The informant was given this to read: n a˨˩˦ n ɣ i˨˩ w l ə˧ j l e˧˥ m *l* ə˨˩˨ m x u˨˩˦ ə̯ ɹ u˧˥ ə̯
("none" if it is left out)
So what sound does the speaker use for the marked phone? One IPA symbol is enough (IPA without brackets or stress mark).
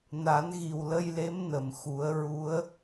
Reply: n